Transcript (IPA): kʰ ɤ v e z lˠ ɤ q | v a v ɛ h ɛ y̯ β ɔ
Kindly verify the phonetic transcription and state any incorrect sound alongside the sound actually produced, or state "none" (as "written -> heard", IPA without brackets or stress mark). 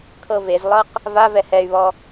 none